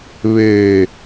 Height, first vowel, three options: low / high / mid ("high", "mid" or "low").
mid